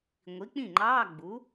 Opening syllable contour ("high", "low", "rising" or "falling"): rising